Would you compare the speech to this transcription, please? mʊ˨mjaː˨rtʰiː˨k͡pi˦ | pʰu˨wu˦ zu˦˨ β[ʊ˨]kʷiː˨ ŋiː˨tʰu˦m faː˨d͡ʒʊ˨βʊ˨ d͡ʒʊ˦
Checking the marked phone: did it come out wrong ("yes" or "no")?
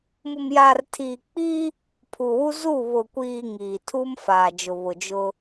no